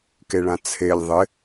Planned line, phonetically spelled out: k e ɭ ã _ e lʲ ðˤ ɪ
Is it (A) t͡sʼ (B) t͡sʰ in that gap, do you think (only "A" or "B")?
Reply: B